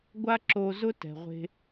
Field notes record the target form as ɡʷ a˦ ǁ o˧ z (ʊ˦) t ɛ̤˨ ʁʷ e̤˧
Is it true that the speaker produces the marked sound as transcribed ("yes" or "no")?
yes